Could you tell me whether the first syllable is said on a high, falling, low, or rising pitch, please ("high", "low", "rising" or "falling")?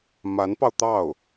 rising